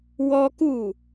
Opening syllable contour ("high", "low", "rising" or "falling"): high